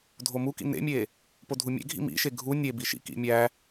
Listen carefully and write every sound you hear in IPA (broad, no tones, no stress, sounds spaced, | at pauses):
dʱ o m u k ḭ n ḛ mʲ e | p o dʱ u mʲ ḛ ɡʱ ḭ m ḭ ʃ e ɡʱ u nʲ e b i ʃ ḭ k ḭ mʲ æ